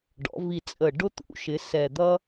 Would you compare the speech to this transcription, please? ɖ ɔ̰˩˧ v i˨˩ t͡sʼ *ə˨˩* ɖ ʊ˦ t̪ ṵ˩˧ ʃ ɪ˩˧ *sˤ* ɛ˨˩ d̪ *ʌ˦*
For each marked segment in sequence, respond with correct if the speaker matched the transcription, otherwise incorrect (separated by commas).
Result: correct, incorrect, correct